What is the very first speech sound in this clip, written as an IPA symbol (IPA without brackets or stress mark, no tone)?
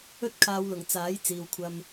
ɵ